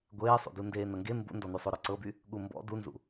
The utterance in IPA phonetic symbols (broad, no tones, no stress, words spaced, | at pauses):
ɡʷeːsˤṵdu ndeːnɤŋɡe mbṵndɔnysˤo ɾɔǀɤby | ɠumbɔ̰ dunzṵ